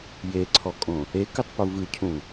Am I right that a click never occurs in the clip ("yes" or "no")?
no